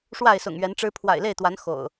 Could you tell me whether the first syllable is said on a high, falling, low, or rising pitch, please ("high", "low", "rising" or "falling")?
falling